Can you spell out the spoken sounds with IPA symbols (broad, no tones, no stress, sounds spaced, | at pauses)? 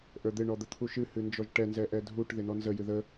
ʔ ə˞ d̪ ɪ ɳ ɔ d̪ ə t̪ʰ u ʃ ɨ h ɨ n d͡ʒ ɔ ʒ ʈ ɛ n z ɛ ʔ ɛ dʱ u ʈ ð ɪ n ɔ n z ə j ɨ ð ə